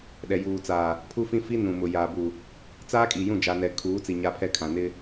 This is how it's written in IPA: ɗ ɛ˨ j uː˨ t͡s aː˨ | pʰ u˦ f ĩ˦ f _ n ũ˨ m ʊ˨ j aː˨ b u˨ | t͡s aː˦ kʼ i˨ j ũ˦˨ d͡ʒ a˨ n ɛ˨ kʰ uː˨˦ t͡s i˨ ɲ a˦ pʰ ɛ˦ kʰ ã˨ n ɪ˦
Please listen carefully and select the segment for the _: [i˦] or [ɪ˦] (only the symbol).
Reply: i˦